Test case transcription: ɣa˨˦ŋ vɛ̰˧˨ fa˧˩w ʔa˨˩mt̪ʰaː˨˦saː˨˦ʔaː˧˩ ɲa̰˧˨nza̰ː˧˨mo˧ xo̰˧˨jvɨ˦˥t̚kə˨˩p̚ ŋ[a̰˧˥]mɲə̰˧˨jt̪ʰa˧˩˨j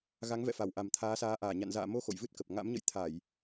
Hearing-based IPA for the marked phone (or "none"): a̰˧˥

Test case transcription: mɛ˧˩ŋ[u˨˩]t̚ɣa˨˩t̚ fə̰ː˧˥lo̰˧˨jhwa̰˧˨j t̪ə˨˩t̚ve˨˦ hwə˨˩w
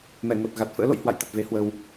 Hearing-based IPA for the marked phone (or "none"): o˨˩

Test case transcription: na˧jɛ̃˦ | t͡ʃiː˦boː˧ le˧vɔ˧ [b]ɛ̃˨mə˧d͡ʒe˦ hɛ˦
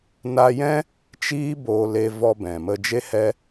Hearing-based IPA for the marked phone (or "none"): b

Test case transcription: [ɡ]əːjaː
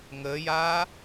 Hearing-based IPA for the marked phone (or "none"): ŋ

